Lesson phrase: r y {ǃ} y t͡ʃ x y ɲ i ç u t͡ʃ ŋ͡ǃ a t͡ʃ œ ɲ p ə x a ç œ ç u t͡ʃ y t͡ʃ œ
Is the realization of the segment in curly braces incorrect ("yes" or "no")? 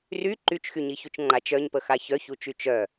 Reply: no